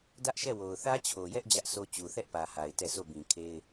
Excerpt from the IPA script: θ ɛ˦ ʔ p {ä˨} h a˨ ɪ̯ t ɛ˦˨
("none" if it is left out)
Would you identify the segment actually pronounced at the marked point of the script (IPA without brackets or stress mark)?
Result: ä˨